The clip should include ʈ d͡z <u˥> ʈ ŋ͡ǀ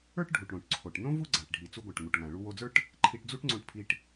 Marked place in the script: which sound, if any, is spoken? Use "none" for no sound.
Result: u˥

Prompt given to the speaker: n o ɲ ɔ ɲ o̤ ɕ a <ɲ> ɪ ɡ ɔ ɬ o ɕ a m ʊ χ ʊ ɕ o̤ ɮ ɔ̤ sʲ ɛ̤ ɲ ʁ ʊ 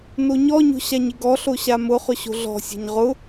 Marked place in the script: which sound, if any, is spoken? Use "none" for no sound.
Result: ɲ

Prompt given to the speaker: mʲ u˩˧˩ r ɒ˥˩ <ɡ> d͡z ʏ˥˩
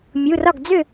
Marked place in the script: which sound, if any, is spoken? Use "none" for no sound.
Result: ɡ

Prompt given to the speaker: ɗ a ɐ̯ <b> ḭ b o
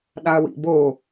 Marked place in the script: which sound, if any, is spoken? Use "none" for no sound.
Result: w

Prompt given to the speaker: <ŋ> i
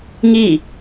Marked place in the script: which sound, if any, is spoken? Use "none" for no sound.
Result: ŋ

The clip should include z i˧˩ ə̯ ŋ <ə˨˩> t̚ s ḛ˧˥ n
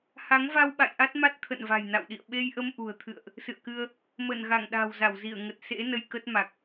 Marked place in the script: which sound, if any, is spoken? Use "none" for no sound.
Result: ə˨˩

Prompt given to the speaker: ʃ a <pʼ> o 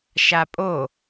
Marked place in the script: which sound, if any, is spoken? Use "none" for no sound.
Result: pʼ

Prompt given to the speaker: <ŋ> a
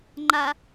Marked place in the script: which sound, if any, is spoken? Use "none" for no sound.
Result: ŋ͡ǃ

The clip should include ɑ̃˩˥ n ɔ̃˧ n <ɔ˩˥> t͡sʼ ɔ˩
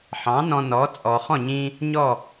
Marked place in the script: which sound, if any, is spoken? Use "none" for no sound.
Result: ɔ˩˥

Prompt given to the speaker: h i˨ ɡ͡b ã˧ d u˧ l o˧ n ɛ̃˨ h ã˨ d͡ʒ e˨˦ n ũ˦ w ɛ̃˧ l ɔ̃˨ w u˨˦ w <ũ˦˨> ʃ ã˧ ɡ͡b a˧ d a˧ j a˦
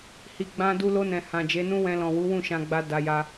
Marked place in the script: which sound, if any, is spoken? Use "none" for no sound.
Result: ũ˦˨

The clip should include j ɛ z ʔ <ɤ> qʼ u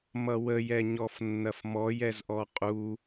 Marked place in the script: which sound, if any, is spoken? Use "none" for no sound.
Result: ɔ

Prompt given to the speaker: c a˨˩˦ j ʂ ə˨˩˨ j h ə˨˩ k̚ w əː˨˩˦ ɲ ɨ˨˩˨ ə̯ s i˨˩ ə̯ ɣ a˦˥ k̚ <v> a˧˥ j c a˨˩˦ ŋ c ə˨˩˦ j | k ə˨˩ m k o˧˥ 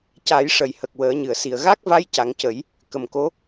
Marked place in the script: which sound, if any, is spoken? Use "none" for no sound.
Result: v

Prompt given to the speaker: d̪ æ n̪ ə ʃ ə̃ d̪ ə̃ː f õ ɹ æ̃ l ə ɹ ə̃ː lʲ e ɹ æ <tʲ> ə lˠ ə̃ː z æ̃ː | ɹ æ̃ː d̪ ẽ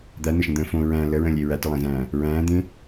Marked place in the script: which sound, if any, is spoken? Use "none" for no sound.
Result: t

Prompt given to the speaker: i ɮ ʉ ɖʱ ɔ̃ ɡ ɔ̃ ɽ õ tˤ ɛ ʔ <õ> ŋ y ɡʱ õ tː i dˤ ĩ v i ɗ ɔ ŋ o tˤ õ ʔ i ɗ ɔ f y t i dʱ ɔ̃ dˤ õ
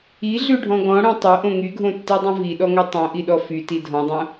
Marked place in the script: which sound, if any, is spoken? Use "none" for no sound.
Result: õ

